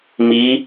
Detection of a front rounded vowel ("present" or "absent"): absent